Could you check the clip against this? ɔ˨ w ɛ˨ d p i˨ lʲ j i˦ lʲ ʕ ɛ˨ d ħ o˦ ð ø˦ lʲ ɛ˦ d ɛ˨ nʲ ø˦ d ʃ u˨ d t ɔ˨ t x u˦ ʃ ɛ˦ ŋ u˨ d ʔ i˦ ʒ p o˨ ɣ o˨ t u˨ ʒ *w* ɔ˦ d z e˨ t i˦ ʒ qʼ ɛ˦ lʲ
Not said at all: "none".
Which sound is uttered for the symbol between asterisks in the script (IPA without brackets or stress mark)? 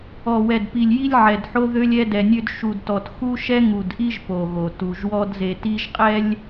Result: w